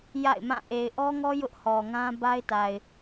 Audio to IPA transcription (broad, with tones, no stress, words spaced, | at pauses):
ja̰˦˨ɪ̯mã˦˨ ʔe˨ɪ̯ʔɔ˦ŋɔ˦ jʊ˦ʔhɔ˨ŋã˦ ba˦ɪ̯ta˨ɪ̯